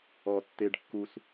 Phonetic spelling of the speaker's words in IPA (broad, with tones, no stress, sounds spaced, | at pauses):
ɔ˦ tː e˦ ɖ kː u˦ s